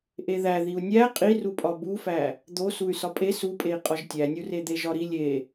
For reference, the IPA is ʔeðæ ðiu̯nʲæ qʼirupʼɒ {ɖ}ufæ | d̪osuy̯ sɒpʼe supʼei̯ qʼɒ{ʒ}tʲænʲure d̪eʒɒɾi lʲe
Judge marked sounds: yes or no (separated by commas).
no, yes